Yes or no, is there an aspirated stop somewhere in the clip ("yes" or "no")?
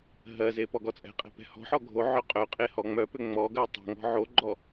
no